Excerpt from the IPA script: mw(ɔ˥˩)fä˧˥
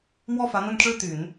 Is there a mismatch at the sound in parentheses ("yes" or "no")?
no